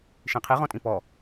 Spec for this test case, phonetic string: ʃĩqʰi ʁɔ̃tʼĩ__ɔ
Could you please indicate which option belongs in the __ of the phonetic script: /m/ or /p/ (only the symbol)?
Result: p